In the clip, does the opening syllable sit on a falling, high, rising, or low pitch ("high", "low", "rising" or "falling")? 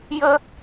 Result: high